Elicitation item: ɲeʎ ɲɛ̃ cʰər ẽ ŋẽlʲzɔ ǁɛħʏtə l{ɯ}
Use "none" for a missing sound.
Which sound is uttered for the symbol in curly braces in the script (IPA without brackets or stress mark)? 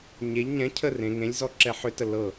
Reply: ɤ